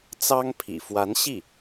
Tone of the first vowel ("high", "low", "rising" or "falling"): high